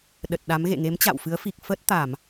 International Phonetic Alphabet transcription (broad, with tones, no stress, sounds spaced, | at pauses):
ɗ ə˨˩ t̚ ɗ a˨˦ m ɣ ḛ˧˨ ŋ e˨˦ m t͡ɕ a̰˧˨ w f ɨ˨˦ ə̯ f i˨˩ k̚ f əː˦˥ t̚ t̪ aː˧˩˨ m